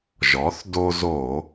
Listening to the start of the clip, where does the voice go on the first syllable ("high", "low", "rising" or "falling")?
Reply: rising